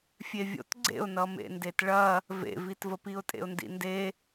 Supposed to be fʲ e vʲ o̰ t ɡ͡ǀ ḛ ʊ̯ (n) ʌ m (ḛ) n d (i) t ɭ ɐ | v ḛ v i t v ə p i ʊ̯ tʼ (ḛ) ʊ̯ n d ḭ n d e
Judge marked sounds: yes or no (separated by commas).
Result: yes, yes, no, yes